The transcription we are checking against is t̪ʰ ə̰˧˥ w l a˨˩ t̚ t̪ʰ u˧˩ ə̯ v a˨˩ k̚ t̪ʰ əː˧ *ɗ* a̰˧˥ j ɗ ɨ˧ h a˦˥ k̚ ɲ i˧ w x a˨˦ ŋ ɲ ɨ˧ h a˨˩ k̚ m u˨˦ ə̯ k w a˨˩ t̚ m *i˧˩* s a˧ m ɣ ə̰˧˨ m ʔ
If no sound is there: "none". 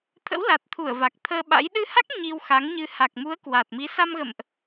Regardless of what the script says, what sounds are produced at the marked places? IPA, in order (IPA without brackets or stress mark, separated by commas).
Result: ɓ, i˨˦